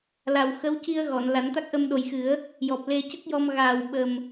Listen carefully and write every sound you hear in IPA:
la˨˩wxə˧˥wci˧ə̯ ɣɔ˨˩˨nla˨˩˦nt̪a˦˥k̚ʔə˧m ɗo˨˩jxɨ˨˩˦ə̯ | jɔ˨˩p̚ le˧cə˦˥k̚jɔ˧m ɣaː˨˩wɓə˨˩m

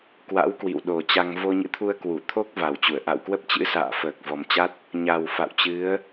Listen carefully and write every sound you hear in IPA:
kwa̰˧˥wkwḭ˧˨wɗo˨˩t͡ɕa˧ŋ vo˧ɲɨ̰˧˥t̪ʰu˧ə̯ kwu˧˩ t̪ʰo˦˥k̚ va˨˩wt͡ɕu˧˩ə̯ ʔa̰˧˨wkwə˦˥p̚t͡ɕɨ̰˧˥ sa̰ː˧˨fəː˨˩k̚vɔ˨˩mt͡ɕa˦˥t̚ | ɲa˨˩w fa̰˧˨wt͡ɕɨ˨˦ə̯

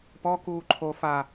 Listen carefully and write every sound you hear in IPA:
pɔ kuːǃʰo fa

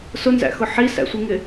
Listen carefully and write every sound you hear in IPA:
sʊnzæ̰xʊ ħisæ̰sʷiŋɪ

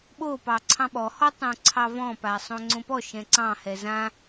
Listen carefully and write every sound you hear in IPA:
ɓo pɑǀʰɑ̃ɓɔhɔ tˤõǀʰɑvɔ̃pa sˤõŋ͡ǀõpɔʃɛ̃ ǀɑ̃hɛ zã

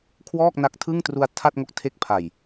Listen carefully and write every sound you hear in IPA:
kʰwɔː˥˩k̚na˦˥k̚tʰɯ˥˩ŋ tru˧a̯ tʰa˥˩t̚ŋo˦˥k̚ tʰe˦˥k̚pʰa˨˩j

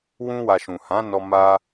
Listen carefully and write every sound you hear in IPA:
wũ˧wa˨ ʃũ˨ hã˨˦nɔ˧ ma˧

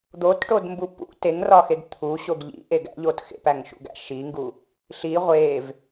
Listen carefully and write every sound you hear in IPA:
d̪otʈodmbu pṵ teŋrɒxeɡ t̪ʰuɕoɡ ʎḭʔeɡ æ̰ʎot xḛpæŋʃṵɡæ̰ ʃiŋɡu | ɬi ʁʷev

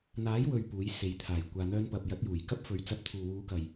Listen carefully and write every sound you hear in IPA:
n̪aː˨˥jwɵ˨ɥ puː˨˥jse˨˧jt̪ʰaː˨˩j kʷaː˧n̪œː˥npɐ˧p̚ jɐ˨˥t̚juː˨˩jkɐ˥p̚fɵ˨˥ɥ t͡sɐ˨˥p̚t̪ʰuː˨wuː˨˧kɐ˨j

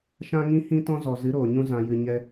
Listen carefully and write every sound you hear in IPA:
ʃã˦ŋĩ˦ hĩ˦tɔ̃˦zɔ˨ zɨ˨˦ɾoː˨ɲũ˧ zã˨jɨ˨ɲɛ˧

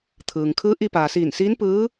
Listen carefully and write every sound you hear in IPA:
t̪ʰɯː˩ŋ kʰɯː˧˥ʔi˧paː˩ siː˧˩nsiː˧˥n pɯː˧˥

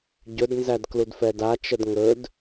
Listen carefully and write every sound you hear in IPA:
ɟɵdnzæd kludfɛda t͡ʃədŋɵd

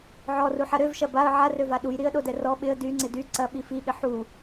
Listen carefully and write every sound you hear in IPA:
ʕɔruħɐ ɾøvʃɐ baə̯ ʕarøva ɗujɾiə̯ɗodɛ rɔ ɓɪə̯ dyŋ͡ǀɪ dy ǀɐɓi fiɠɪ ħu

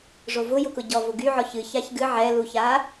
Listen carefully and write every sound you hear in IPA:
ʐovʊ jʊkʊɟɔ vʊɡyʕɔç ɨ çaçɡɨ ʕɛluça

